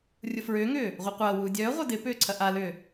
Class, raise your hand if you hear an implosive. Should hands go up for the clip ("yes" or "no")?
no